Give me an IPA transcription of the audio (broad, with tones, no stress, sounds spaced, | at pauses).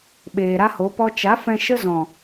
ɓ eː˨ ɾ a˦ h o˨˦ p ɔ˦ t͡ʃ a˨˦ f ɛ̃˧ ʃ ə˦ z ɔ̃˨